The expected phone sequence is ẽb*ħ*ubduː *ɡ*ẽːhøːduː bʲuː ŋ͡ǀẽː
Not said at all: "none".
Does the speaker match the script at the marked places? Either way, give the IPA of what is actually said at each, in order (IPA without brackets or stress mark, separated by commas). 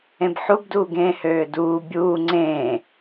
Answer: ħ, ɡ